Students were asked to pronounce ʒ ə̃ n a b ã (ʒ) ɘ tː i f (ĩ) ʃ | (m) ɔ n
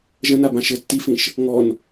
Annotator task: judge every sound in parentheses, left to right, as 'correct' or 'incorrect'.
incorrect: ʃ, correct, incorrect: ŋ

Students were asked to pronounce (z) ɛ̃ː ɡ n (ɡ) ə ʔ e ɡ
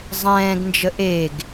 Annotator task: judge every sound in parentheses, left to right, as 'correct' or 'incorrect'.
incorrect: zˤ, incorrect: d͡ʒ

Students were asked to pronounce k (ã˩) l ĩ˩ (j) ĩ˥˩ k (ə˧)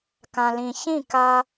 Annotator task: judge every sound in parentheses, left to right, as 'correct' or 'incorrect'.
correct, incorrect: ç, incorrect: a˧

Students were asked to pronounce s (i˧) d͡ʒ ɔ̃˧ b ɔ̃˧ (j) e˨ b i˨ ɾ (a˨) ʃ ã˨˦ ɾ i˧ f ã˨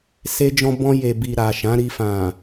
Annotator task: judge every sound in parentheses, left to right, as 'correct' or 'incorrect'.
incorrect: e˧, correct, correct

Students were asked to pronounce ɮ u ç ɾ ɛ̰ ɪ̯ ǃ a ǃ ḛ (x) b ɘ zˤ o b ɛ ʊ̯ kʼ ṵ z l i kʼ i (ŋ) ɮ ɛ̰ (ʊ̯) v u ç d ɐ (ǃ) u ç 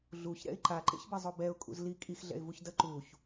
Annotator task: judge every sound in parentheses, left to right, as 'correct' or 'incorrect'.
incorrect: ç, incorrect: x, incorrect: ɪ̯, correct

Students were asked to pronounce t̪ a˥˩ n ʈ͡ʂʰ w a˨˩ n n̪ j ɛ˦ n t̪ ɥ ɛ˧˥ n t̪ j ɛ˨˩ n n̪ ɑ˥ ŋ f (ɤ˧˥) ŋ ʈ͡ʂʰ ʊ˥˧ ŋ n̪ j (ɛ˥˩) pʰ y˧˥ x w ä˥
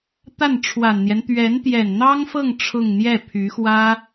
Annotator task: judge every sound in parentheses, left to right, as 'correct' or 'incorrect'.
incorrect: ɤ˥˧, correct

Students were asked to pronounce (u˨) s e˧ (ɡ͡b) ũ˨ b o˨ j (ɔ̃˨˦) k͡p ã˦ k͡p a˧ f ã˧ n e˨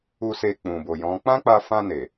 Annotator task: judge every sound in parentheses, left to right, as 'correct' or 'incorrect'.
correct, incorrect: k͡p, correct

